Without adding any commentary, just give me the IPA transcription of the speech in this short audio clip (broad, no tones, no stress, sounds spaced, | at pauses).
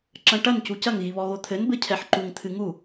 ǁ ɐ̃ ʈ ɐ n c u c ɐ ŋ ɣ i β ɔ ɣ o t̪ʰ ɘ n b ɘ cʰ ɛ ħ ǃ u ŋ t̪ʰ ɨ ŋ u